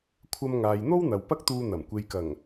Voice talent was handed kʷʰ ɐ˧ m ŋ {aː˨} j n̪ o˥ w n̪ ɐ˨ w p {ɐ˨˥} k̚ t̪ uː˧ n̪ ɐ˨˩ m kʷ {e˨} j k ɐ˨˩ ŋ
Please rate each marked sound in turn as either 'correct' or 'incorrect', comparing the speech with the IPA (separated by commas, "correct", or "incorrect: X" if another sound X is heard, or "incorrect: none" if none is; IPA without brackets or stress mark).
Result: correct, incorrect: ɐ˥, correct